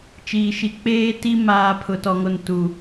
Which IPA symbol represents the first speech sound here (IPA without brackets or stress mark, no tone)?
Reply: t͡ʃ